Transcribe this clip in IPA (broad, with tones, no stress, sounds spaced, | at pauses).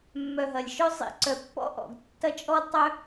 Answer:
mː œ˨ ɦ ɐ˨ lʲ ʃ œ˦ zˤ ḭ˨ ǀ œ˨ pː ɔ̰˦ ʔ ɔ̰˨ ɡ tː ɐ˦ t͡ʃʼ ɔ˦ d tˤ œ˦